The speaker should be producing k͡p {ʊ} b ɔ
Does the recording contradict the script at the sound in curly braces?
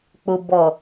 no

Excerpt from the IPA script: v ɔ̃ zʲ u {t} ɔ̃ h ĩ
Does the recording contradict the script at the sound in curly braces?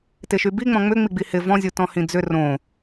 no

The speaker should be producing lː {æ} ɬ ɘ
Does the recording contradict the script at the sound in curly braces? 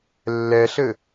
yes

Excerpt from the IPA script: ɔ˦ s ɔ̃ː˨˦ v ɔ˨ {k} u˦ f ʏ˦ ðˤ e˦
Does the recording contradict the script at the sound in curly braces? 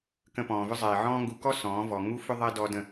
yes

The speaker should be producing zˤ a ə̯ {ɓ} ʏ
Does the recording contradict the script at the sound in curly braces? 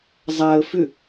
yes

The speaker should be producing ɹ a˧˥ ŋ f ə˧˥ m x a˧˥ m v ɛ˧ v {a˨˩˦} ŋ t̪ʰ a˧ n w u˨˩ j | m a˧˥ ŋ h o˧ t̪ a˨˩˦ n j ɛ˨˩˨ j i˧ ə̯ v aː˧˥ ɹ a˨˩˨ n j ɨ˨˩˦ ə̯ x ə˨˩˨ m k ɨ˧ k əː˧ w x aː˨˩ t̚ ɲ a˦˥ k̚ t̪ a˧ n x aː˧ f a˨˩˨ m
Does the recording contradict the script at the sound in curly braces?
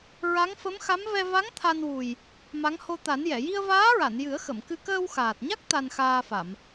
yes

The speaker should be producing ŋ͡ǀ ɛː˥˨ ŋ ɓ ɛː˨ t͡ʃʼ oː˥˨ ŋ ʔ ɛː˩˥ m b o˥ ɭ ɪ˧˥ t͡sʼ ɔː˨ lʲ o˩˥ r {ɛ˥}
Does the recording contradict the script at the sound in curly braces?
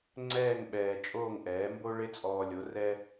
no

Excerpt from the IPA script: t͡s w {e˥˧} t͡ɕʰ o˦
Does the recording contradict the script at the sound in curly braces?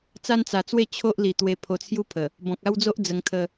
no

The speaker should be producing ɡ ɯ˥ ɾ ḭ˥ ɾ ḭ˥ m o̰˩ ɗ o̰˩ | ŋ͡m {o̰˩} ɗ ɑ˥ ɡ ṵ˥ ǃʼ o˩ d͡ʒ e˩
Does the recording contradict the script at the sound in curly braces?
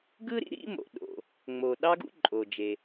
yes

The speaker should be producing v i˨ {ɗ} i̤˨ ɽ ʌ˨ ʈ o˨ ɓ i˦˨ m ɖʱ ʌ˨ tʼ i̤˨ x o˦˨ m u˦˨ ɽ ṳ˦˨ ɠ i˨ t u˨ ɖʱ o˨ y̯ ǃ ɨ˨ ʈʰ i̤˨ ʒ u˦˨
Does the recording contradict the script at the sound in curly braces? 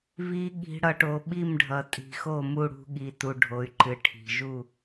yes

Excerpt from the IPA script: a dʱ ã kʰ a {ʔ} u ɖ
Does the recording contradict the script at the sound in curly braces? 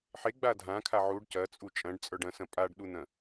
yes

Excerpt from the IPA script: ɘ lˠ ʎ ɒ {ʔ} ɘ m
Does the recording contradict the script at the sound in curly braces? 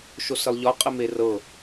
yes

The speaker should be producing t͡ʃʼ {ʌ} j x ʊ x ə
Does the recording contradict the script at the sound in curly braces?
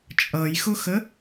no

